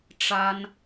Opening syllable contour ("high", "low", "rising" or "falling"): high